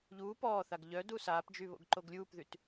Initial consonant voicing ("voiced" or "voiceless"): voiced